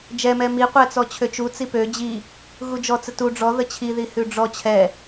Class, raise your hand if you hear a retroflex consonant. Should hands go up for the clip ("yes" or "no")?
yes